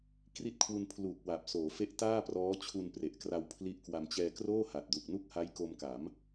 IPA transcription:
k r i˦˥ t̚ kʰ w u˧ n pʰ l uː˨˩ k̚ w a˨˩ p̚ s oː˩˦ f e˦˥ ʔ t aː˥˩ p r ɔː˦˥ t͡ɕʰ u˧ n p r e˨˩ ʔ k r a˧ w pʰ l i˦˥ ʔ k w a˧ m t͡ɕ ɛː˧ k r oː˥˩ h a˨˩ t̚ d u˨˩ k̚ n u˥˩ k̚ h a˦˥ j k o˧ m k a˩˦ m

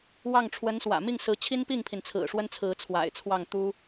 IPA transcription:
w ɑ˥˩ ŋ ʈ͡ʂʰ w ə˧˥ n s w ä̰˨˩ m i˥˩ ŋ s ɹ̩˧˥ t͡ɕʰ i˥ n p i˥˩ ŋ pʰ i˩ n t͡sʰ ɹ̩˨˩ ʂ w ə˥ n t͡sʰ ɹ̩˧˥ t͡sʰ w a̰˨˩ ɪ̯ t͡sʰ w ɑ˥˩ ŋ t̪ u˥

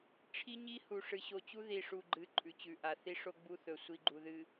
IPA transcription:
ʈ͡ʂʰ i˦ ɲ i˦ h u˨ ʂ ɨ˨ ɕ o˨ t͡ɕ u˦ ð i˨ ʂ u˨ ɡ͡ǃ ɨ˨˦ ǃʼ ʉ˨ t͡ɕ ʉ˨ ʔ a˨ θ i˦ ʂ o˦ ɡ͡b u˦ θ ɵ˨ sʷ i˦ ɡ͡ǃ u˨ ð ɨ˨

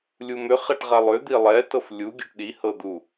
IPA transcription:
lʲ u m ʏ χ ɛ ʈ ʁ a lˠ ʏ d̪ i lˠ ɛ t ɤ f lʲ u ɡʲ ɯ ʈ ɗ i h ɤ d̪ u

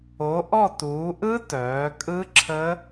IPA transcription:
o˩˧ ʔ ɔ˦˨ t uː˩˧ ʔ ɯ˦˥ t œː˩˧ kʼ ɯ˦˥ ǁʰ ə˦˥

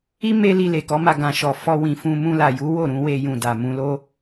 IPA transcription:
i˦ m e˦ l i˧ l e˨ k ɔ˨˦ m a˧ ɡ ã˨ ʃ ɔ˨ f ɔ˧ w ĩ˨ f ũ˧ m ũ˧ l a˨ j u˨˦ w o˦˨ ɾ ũ˧ w e˧ j ũ˨ d a˨ m ũ˧ l o˦

